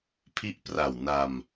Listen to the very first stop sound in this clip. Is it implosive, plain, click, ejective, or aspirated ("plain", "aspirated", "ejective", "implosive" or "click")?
aspirated